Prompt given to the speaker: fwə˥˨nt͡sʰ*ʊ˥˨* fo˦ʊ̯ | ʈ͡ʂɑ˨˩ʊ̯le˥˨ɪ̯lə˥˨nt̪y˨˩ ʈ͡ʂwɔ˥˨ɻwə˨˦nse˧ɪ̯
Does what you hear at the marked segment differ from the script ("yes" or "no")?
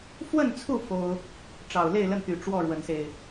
yes